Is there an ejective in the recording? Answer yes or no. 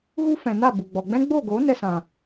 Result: no